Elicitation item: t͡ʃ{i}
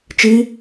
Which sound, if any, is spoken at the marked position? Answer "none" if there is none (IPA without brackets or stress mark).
i